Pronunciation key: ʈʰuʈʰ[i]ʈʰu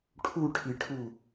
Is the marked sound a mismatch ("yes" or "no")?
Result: no